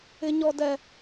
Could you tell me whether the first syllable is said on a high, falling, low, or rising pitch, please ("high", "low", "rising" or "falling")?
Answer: high